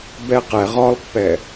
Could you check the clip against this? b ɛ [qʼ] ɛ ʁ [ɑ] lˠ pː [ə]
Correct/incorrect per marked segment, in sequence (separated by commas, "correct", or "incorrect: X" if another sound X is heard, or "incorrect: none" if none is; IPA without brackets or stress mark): incorrect: q, incorrect: ɒ, incorrect: ɛ